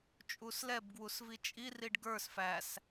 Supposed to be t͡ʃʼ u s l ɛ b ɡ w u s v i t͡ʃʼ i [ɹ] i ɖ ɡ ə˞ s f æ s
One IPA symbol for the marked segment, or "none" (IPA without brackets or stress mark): r